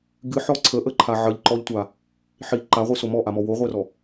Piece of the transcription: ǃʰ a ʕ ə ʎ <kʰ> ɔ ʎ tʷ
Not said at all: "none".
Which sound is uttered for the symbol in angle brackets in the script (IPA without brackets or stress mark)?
ǃ